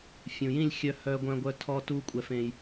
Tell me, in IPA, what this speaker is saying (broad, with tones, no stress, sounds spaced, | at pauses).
fʲ ũ˨ j ĩ˦˨ lʲ xʲ œ˧ h œː˧ ɡʷ œ̃˧ ɡʷ œ˧ tʰ ɔ˧ t u˧ kʷʼ ɛ˧ f ẽ˧ j